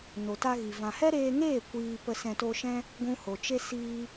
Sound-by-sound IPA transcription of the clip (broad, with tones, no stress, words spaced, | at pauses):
no˨ta˧ɣi˨ vã˨hɛ˦ɾeː˧ŋeː˦˨ kʷiː˧ pə˧sɛ̃˧to˧ʃɛ̃˦ | ɡʷũ˧ho˨ t͡ʃe˧ siː˧